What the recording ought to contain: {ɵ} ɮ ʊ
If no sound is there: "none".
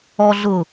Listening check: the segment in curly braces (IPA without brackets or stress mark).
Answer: ɔ